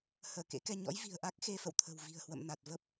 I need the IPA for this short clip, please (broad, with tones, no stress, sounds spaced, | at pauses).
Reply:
h əː˧˩ k ḛ˧˥ k ɛ˧ ɲ ɔ̰˧˥ j v i̤˨˩ ə̯ ʔ a˦˥ k̚ x e˧ f ə̰˧˨ w t̪ʰ ə̤˨˩ w v i̤˨˩ ə̯ h w ə̰˧˨ m n a˨˩ t̚ v ə˦˥ p̚